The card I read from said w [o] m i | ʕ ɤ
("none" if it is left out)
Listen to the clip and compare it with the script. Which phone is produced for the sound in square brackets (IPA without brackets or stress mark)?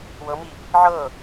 ɤ